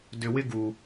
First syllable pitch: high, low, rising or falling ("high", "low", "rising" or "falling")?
low